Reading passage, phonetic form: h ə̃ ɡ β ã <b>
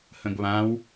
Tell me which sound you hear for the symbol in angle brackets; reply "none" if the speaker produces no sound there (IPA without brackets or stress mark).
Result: w